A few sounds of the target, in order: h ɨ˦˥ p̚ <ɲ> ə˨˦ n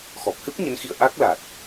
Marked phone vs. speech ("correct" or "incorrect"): correct